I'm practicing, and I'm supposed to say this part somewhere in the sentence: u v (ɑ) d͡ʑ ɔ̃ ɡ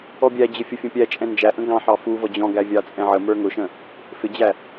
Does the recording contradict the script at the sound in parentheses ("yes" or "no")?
yes